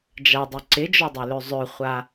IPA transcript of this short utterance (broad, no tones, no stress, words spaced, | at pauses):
d͡ʒadˤy ǀɪd͡ʒɔdˤelø zˤøχʷa